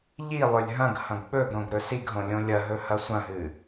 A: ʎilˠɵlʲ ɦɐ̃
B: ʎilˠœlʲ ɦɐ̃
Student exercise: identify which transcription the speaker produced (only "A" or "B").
A